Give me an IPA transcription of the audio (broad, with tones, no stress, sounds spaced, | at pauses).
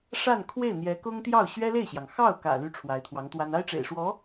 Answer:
ʂ a˥˧ n kʰ w e˥˩ ɪ̯ n̪ j ɛ˧˥ k ʊ˥ ŋ t̪ j ɑ˥˩ ʊ̯ ɕ ɥ ɛ˥ l e˥˩ ɪ̯ ɕ j ɑ˩ ŋ x ɑ˥˩ ʊ̯ k ä̰˨˩ l y˥ ʈ͡ʂʰ w a˧˥ ɪ̯ t̪ʰ w ɑ˧˥ ŋ t̪ w a˥ n a˥ ɪ̯ ʈ͡ʂ ḛ˨˩ ɪ̯ ʂ w ɔ˧˥